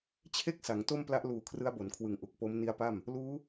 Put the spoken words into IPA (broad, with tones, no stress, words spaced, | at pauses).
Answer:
t͡ɕʰe˥˩k̚ sa˩˦ŋto˥˩mpla˦˥ʔ luː˨˩ kʰrɯ˦˥a̯bo˩˦nkʰwɯ˨˩ŋʔu˨˩k̚ po˦˥mni˦˥a̯pa˥˩m | luː˦˥